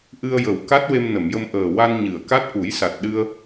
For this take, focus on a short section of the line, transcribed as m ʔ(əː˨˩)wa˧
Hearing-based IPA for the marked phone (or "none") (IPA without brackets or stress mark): əː˨˩